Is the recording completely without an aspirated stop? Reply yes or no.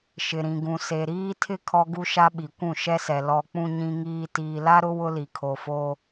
no